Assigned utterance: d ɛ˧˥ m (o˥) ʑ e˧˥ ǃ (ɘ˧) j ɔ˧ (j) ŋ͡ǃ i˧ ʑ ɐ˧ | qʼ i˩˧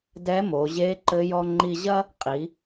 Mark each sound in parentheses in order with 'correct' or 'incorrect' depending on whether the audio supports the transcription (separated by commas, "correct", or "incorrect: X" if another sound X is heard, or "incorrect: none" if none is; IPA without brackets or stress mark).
incorrect: o˩˧, correct, incorrect: none